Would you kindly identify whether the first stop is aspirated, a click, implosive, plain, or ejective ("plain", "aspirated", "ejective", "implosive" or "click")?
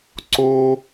click